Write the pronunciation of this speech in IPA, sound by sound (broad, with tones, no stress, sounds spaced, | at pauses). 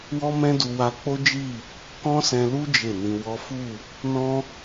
w ɔ˦ m ɛ̃˦ d u˧ w a˧ k͡p o˦ d͡ʒ i˦˨ | k ɔ̃˦ s ɛ̃˧ l u˦ d͡ʒ e˦˨ n ĩ˧ w ɔ˦ f u˦˨ | n ɔ̃˦